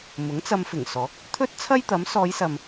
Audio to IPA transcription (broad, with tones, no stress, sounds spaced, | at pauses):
m ʊ˨˥ ŋ t͡s ɐ˧ m f ɪ˨˩ ŋ s ɔː˨˥ k̚ | t̪ʰ ɵ˥ t̚ t͡sʰ ɐ˥ j t̪ ɐ˨˥ m s ɔː˨˧ j s ɐ˨ m